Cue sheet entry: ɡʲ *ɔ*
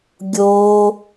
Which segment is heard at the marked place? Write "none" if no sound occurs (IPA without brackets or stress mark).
o